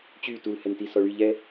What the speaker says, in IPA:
t͡ɕ y t u l h ɛ n t i s ɔ ɭ y ʎ ɛ

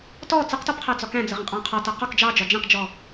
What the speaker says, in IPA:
t ɔ t͡s ə q t ɔ p qʰ æ d͡z ɒ k æ̃ d͡z ə ʁ ə̃ qʼ ɑ̃ qʰ ɒ t ʌ q ɒ k d͡ʒ ɑ d͡ʒ ɒ d͡ʒ ɛ̃ q d͡ʒ ɔ

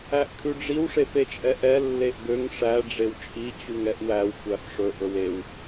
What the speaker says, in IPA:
æ ʔ kʰ ʉ ɖ͡ʐ i w ʂ e f e t͡ʃʼ ɛ ʔ ɛ lː e ʔ ɡ ø ŋ ʂ æ ɖ͡ʐ e w t͡ʃʼ i t͡ɕ u ŋ ɛ ʔ w æ w kʷ æ f ʂ ɵ ʔ ɵ w e w

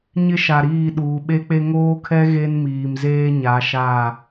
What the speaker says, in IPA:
ɲ ɪ˦ ʃ a˨ ɾ iː˦˨ ɗ uː˨ ɓ e˦ k͡p e˦ ŋ oː˦ kʰ ɛ˦ ɣ e˦ n m iː˨ m z eː˦ ɲ a˨˦ ʃ a˦˨

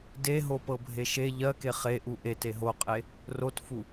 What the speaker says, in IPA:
d e ɦ o p ɤ bʱ e ʃ e ʎ ɜ k e χ e ʔ u ʔ e t e ɦ o qʼ e | r o t f u

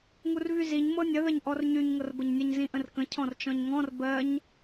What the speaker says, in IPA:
ŋ u r v y z i ɲ m ɤ nʲ ə ð ə ɲ ʔ ɔ r ɲ y ɲ ŋ ɤ r b ə ɲ nʲ ə ɲ z ĩ ʔ ə̃ r k ə̃ cʰ ɔ̃ r t͡ʃ ɔ̃ ɲ ŋ ɔ̃ r b ɜ ɲ

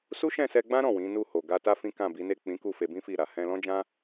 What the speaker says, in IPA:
s u˦ ʃ ɛ̃˦˨ s ɛ˧ ɡ͡b ã˦ ɾ ɔ̃˦˨ w ĩ˨˦ n u˦˨ h o˨ ɡ a˧ t a˦ f ĩ˦ k ã˦˨ b i˨˦ n e˦˨ k͡p ĩ˨˦ k u˦˨ f e˧ b ĩ˦ f i˦˨ ɾ a˨ h ɛ̃˧ l ɔ̃˦ d͡ʒ ã˦

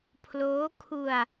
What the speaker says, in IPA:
pʰ l oː˦˥ kʰ u˧ a̯

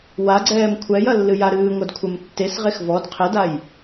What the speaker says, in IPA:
w a ɡ͡ǀ ɛː m kʷʰ ɛ j ɐ lː ɨ j a ɾ ɨː ŋʷ ɐ d kʷʰ ɛ m tː e s ʁ e x v ɔ d qʰ ɘ d a j

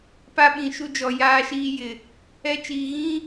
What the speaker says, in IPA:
p a˦ ɓ ĩ˨ ʃ u˦ d͡ʒ ɔ˨ j aː˦ ʃ iː˦ j ɪ˨ | ɛ˦ t͡ʃ iː˨ ɣ ĩ˦

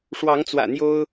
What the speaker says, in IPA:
ʂ w ɑ˨˦ ŋ t͡s w ä̰˨˩ n̪ j o˦ ʊ̯

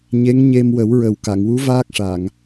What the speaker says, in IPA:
ɲ e˧˥ ŋ ɲ e˧ m w ə˨˩˦ w ɹ ə˨˩ w k a˨˩˨ ŋ w u˧˥ v aː˦˥ k̚ ʂ a˨˩˨ ŋ

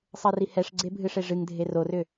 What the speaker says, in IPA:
sˤ ɛ r i h ɛ ʂ ɡ͡ǀ e bʱ ɨ ʂ e ʐ ɨ ŋ dʱ e r o r ʏ

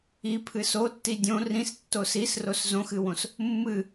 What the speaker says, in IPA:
i pʰ ɨ s o tː i dʲ õ r ĩ s tː o s i s r o s z õ x ɨ w õ s | mː ɨ

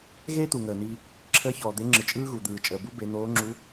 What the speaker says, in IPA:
ɣ eː˥ t̪ u˩ ŋ əː˩ n̪ iː˧ | ǁʰ əː˧˥ ç ɔː˩ d̪ e˧˥ ŋ͡ǁ ɯ˩ t͡ʃʼ ɯː˥ ɣ u˩ d̪ ɯː˩ t͡ʃʼ əː˩ b u˧˥ b e˩˧ n̪ oː˧˥ ŋ͡ǁ u˧˥

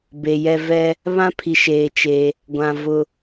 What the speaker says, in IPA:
b e˨ j ɛ˦ v ɛ˦ | β ã˦ pʰ i˨ ʃ eː˨ t͡ʃ e˦ | ɡʷ ã˨ v ʊ˨

